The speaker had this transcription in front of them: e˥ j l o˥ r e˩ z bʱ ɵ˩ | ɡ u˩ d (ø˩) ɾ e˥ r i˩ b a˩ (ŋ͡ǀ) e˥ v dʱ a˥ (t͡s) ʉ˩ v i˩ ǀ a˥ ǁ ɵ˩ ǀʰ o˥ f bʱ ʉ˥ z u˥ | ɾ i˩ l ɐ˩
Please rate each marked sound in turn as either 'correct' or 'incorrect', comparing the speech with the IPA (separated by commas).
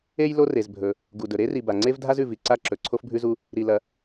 incorrect, correct, incorrect